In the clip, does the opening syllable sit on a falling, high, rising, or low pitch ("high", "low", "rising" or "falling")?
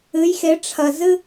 rising